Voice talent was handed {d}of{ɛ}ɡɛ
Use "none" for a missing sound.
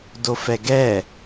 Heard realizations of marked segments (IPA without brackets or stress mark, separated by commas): d, ɛ